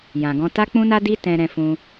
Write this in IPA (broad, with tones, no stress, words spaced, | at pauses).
jã˨ɡɔ̃˧ta˦ k͡pũ˦na˦di˦ tɛ̃˧ɾɛ̃˧fũ˧